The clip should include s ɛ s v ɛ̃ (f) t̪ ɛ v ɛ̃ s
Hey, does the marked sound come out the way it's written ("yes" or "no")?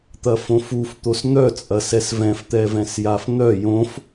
yes